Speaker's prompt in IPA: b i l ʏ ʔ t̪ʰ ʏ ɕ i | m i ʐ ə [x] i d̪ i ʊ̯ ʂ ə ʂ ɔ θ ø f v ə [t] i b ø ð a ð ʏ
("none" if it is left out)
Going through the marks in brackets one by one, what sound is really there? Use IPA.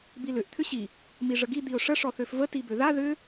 ɡ, t

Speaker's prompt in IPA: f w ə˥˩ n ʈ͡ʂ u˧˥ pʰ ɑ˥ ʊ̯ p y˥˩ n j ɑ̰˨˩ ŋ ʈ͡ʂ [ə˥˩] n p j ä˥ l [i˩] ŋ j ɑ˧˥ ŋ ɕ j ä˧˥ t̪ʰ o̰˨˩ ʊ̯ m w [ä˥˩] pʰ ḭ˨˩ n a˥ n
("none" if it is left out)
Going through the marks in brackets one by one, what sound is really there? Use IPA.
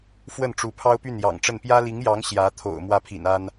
ə˥˩, i˧˥, ä˥˩

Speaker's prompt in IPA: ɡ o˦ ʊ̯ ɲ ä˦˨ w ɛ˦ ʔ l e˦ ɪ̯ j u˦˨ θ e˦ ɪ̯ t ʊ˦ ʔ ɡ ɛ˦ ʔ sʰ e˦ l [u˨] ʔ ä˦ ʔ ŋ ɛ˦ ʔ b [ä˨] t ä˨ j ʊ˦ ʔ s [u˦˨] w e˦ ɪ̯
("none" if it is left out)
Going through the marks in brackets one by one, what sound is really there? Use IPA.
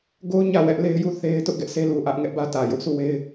u˨, ä˦, u˦˨

